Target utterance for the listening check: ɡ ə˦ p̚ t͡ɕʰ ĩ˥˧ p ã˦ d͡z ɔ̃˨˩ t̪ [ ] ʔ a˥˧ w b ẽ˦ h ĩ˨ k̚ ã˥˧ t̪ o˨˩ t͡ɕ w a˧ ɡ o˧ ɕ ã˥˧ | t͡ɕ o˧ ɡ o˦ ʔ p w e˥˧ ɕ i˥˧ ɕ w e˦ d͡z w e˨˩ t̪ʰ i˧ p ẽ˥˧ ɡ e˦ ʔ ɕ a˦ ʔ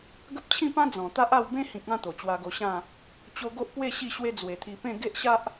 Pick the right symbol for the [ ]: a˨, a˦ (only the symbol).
a˦